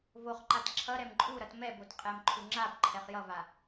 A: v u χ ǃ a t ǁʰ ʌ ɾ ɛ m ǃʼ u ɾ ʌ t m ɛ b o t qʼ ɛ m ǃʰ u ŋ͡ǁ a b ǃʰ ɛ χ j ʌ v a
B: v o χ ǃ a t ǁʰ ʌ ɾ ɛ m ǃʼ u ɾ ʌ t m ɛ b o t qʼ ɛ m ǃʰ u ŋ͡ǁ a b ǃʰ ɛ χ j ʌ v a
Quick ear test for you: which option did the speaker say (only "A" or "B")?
B